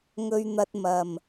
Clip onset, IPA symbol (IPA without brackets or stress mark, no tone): ŋ